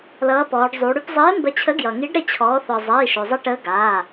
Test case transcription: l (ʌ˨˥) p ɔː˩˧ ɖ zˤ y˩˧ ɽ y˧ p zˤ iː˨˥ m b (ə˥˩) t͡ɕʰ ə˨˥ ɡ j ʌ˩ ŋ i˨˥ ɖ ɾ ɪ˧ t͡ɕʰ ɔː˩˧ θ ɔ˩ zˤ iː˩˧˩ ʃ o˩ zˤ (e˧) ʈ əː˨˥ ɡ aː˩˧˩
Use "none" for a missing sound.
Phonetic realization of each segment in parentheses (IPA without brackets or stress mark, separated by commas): ʌː˨˥, ə˨˥, i˧